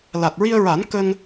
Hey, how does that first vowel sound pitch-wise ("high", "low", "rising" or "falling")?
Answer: low